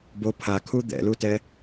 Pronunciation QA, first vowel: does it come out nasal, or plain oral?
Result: oral